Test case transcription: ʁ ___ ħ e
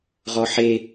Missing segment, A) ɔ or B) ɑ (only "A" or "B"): A